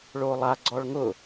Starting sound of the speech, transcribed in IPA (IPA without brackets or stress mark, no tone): ɭ